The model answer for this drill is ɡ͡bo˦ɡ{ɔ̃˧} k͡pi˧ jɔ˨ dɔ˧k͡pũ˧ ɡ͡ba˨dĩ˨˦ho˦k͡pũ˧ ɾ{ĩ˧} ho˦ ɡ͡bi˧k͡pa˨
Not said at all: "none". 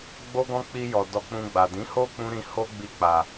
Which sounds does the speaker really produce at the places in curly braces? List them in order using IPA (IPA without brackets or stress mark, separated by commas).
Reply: ɔ̃˦, ĩ˧